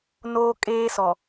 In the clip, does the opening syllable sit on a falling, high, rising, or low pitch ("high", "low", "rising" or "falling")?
high